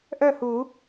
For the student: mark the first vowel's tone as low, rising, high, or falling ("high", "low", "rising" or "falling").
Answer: falling